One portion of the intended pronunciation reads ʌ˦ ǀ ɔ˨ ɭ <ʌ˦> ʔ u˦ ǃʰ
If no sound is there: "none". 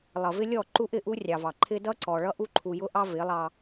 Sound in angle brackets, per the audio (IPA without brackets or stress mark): ʌ˦